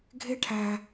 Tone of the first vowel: high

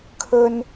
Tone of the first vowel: high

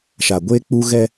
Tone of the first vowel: low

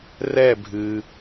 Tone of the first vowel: falling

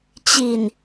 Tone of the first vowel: low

